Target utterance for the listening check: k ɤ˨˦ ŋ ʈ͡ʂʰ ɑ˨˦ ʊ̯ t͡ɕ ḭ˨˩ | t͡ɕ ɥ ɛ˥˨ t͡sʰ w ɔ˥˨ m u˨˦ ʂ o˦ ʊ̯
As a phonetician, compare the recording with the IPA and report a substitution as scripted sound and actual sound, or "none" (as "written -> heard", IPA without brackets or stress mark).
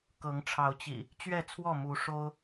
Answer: none